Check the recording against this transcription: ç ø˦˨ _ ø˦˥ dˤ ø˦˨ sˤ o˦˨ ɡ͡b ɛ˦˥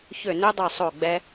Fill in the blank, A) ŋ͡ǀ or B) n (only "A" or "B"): B